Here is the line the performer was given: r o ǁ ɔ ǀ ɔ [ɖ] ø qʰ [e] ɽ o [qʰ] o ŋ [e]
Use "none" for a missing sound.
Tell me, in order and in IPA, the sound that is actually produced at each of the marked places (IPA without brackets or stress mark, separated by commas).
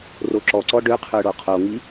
ɖ, ø, qʰ, i